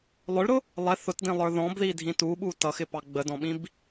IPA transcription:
lˠ ʊ ɭ ɾ ʊ | lˠ ɛ θ ʊ t d ĩ lˠ ə˞ ð ɔ̃ b ð i dʱ ĩ t u ɓ u t ʌ x ɪ p ɑ ɡ͡b ə d ɔ̃ ɓ ĩ b

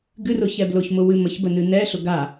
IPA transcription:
ɡ ɨ r ʊ ç ɛ b l ʊ ç m ʊ w ɨ m ə ç b ə n ɨ n ɛ ɬ ʊ ɡ a

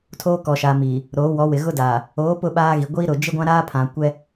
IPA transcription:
tʰ oː˦ k ɔ˨ ʃ a˨ m iː˨ | ɾ oː˨˦ w ɔ˨˦ w ɪ˨ ɣ ʊ˦ d aː˨ | oː˨˦ p ʊ˦ ɓ aː˦ ɣ i˨ ɡʷ i˦ ɾ ʊ˨ d͡ʒ ɪ˦ ɡʷ ã˦ ɾ aː˦ pʰ ã˨ kʷ ɛ˦

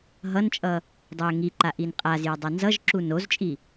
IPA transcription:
ɦ ʌ n t͡ʃʼ ʌ | dˤ ɯ e̯ ŋ i ǃ a ʔ i n qʼ a z j ʌ dˤ ʌ n z ʌ ʒ ǁ u n o z t͡ʃʼ i

